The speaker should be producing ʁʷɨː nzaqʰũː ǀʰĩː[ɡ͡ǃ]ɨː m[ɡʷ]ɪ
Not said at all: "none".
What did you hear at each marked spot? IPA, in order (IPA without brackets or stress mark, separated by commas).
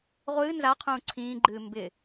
ɡ͡ǃ, b